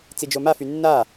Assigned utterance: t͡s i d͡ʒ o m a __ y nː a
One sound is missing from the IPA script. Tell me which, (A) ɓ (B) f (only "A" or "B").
B